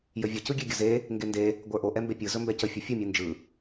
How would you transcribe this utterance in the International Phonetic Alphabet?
jəvʲə cɯɡʲeɡʲəze | ŋɡende | ɡʷə˞ʔo ʔɛmbepʲɯ zɵmbɛcə fʲɵfʲɯ mʲɯnd͡ʒɯ

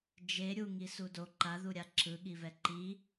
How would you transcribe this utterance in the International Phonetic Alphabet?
d͡ʒe ɾʲuŋisu do ǃaðuɾʲa ǁɯɠivɛ ǃi

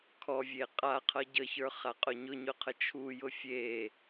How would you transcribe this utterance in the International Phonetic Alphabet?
kʰɔvʲe qʼaqʰʌ ɟəçə˞χaqʼʊ ɲʊɲʊqʰə t͡ʃʰujʊ fʲe

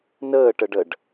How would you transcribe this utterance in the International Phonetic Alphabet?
nəːʈəɖəɖ

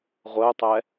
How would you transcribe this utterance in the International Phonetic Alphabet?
ʁʷəʊ̯tˤɛ

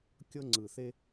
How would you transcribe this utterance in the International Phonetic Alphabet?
kʲɤ˦ŋ͡ǀɯ˨˩θe˦

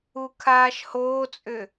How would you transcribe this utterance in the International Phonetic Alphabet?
ukʰaːʃhoːt͡sʼʏ

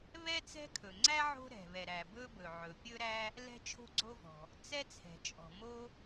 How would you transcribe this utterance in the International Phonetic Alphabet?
βɛ˥t͡sɛ̤˥kʰɵ˩ ŋ͡ǀæ˥ ʕo̤˥ ɾɛ̤˩ βɛ˩ɾæ˩bɵ˥bɵ˩ ʕɵ˩pʲɵ˥ɾæ˥ | lɛ̤˥t͡ʃʰo̤˥ɡ͡ǀo˥vɔ̤˩ | t͡sɛ˥t͡sʰɛ̤˩t͡ʃʼɔ̤˩ mo˥

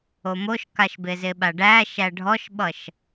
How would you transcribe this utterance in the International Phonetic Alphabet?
omoʃkaʃbɪ zɪɓaɖæʃæ ɖʱɔʃɓʌʃ

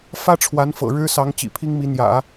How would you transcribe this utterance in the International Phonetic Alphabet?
fä˥ʈ͡ʂʰwa˧˥n fɤ̰˨˩ɻɻ̩˥sɑ˧˥ŋ t͡ɕḭ˨˩pʰi˥ŋmi˧˥ n̪jä̰˨˩˦

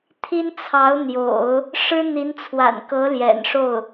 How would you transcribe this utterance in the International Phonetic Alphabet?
t̪ʰi˥nt͡sʰɑ˧˥ʊ̯ n̪jo̰˨˩˦ʊ̯ | ʂɻ̩˥n̪i˧˥nt͡sʰwa̰˨˩nkɤ˧˥ ljɛ̰˨˩nʂo˥˩ʊ̯

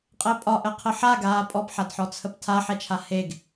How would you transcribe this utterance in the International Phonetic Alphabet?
qʼɛpʼɒʔəqʰə ħaɡaː pʼɔpħadħɔt͡sʰəp tʰaħɛt͡ʃʰa heɡ

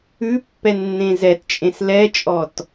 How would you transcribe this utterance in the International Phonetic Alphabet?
ʉpːɛnːẽ zɛtt͡ʃʼẽs lɛt͡ʃʼɔt

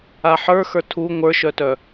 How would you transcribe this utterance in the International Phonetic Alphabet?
aħə˞xə˞ tʰu ŋʷə˞ʃœtœ

